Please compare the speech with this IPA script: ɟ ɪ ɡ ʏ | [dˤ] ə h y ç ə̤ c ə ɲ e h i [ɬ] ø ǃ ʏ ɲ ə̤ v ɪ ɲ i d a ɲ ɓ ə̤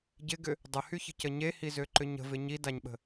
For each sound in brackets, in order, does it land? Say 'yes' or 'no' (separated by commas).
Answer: yes, no